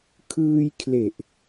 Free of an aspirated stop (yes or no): no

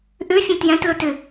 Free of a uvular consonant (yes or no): yes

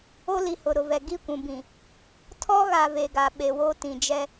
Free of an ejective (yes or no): yes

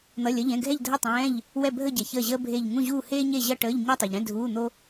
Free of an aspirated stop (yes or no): yes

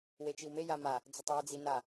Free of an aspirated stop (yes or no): yes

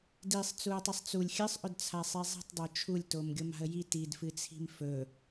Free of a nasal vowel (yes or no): yes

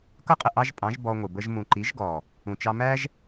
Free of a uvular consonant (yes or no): no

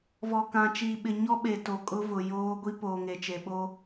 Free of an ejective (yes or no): no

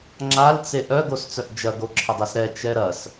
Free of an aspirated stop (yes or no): no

